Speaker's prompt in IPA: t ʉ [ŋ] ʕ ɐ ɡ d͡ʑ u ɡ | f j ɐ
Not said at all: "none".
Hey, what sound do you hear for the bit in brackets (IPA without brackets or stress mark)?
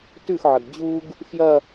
x